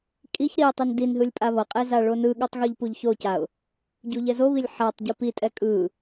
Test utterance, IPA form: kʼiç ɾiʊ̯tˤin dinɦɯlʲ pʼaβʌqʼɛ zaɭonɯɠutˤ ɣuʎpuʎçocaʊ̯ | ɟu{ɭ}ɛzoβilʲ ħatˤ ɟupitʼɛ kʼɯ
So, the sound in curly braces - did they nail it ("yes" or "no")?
no